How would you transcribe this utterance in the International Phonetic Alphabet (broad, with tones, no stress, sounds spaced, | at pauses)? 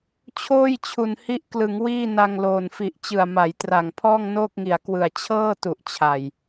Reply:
t͡ɕʰ oː˥˩ j t͡ɕʰ u˨˩ n h i˦˥ ʔ k l ɯ˩˦ ŋ w iː˥˩ n a˧ ŋ l oː˨˩ n f i˨˩ ʔ t͡ɕ ɯ˨˩ a̯ m a˩˦ j t r a˨˩ ŋ pʰ ɔː˥˩ ŋ n oː˥˩ k̚ ŋ i˨˩ a̯ k w ɯ˨˩ a̯ t͡ɕʰ ɤː˥˩ t u˨˩ ʔ t͡ɕʰ a˨˩ j